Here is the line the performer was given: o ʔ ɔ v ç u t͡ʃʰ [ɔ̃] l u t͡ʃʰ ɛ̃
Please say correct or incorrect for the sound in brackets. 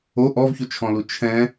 correct